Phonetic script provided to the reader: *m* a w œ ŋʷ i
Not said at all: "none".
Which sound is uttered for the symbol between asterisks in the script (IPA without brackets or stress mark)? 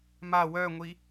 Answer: m